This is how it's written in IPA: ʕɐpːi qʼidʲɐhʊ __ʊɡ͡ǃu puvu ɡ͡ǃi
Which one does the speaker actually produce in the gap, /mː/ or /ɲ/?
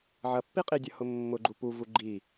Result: mː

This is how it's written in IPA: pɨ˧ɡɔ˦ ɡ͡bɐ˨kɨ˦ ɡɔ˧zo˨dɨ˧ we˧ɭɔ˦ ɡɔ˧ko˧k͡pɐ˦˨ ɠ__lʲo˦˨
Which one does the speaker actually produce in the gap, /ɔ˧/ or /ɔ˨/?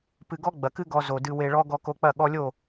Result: ɔ˧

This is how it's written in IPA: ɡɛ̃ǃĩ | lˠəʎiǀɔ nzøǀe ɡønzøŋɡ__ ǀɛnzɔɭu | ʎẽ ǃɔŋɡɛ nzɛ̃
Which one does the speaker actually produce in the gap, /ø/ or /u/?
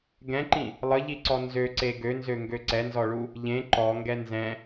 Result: ø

